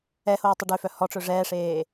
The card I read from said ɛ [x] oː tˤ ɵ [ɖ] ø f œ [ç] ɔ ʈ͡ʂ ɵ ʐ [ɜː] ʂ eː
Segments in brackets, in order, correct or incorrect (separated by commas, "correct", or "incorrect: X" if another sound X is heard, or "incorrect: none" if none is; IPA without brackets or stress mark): incorrect: h, correct, incorrect: h, incorrect: ɛː